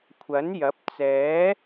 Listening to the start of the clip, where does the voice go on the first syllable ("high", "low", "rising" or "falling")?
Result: rising